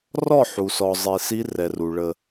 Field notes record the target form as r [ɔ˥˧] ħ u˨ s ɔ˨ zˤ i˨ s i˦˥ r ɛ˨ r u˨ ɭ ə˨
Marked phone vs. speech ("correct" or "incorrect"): correct